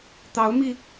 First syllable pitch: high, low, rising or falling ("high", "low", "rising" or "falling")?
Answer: rising